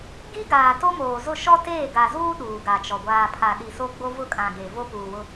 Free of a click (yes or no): yes